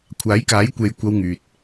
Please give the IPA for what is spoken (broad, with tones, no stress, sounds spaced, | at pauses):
kʷʰ aː˨˥ j k aː˨˥ j kʷ e˨˧ j kʷ ɐ˧ w ŋ yː˨ t̚